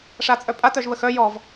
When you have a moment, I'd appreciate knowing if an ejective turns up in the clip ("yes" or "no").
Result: yes